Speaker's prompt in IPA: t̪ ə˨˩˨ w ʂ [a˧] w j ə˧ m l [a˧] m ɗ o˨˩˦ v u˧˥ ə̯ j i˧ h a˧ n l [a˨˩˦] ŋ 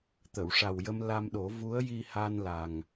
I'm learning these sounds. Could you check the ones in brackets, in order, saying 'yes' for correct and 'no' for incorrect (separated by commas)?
no, yes, no